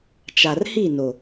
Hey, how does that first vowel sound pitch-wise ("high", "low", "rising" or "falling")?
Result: low